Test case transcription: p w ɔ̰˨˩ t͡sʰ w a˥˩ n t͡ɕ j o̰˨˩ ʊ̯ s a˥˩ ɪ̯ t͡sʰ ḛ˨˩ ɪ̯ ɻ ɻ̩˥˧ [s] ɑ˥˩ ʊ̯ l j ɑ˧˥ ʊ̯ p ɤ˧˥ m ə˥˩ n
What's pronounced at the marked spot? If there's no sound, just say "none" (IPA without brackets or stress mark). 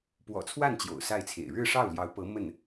ʂ